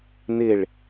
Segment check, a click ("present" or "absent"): absent